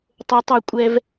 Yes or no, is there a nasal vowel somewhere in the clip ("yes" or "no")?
no